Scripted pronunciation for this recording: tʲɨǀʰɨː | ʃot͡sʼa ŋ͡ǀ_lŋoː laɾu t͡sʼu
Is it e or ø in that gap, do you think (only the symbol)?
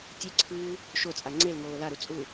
e